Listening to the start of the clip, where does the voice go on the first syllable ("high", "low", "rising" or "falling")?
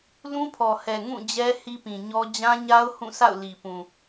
high